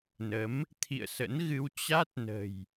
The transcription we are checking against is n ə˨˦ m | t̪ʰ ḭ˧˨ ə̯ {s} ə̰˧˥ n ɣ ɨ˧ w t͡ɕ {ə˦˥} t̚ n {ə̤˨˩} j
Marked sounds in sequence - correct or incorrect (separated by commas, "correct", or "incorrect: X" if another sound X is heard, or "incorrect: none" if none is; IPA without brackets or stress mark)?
correct, incorrect: a˦˥, correct